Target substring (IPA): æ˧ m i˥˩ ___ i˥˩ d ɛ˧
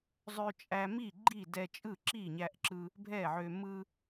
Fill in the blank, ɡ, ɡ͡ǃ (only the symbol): ɡ͡ǃ